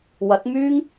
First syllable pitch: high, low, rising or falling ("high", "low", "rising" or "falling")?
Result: rising